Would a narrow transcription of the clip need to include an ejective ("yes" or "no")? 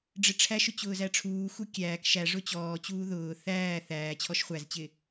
no